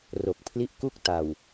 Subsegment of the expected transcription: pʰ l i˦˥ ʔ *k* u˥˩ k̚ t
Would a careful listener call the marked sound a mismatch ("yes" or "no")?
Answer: no